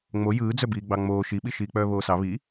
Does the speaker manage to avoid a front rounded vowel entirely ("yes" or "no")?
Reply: no